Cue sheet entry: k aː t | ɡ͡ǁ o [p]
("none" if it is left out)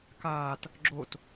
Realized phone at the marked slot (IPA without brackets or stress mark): t